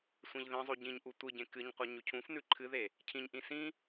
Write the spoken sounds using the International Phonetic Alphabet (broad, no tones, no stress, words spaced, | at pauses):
sʷẽʎðĩzˤʉ ɟĩɲʔu tʷɨɟẽ kɨɲqʷɐ ɲʉcʰũfnʉ ǃʰɨðe | cʰĩɲʔĩ sĩ